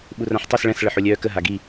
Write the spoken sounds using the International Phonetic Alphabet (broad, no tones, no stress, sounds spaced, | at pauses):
ɓ u r ã ħ tˤ ø s ɭ ɛ̃ s ɭ ə ħ o lʲ œː k ə ɦ a ɡ i